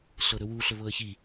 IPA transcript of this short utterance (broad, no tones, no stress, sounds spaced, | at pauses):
ɬ ɤ ɾ ɵ w u ɬ ɵ β ɤ ə̯ ç i